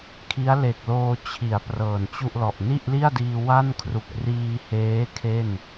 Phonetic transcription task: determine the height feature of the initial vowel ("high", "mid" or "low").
high